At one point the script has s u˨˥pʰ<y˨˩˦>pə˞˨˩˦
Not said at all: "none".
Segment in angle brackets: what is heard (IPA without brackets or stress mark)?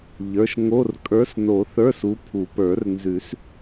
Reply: u˨˩˦